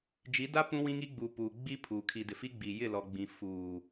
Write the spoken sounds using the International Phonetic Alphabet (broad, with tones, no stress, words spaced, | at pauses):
d͡ʒi˨˦da˦ pũ˦wĩ˦ŋi˦ ɡ͡bu˨pu˨ ɡ͡bi˦ pʰu˨ kʰi˨dɪ˨fi˦ɡ͡bi˨ jɪ˦˨lɔ˨ ɡ͡bĩ˨fuː˨